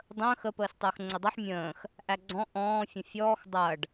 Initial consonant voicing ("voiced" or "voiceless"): voiced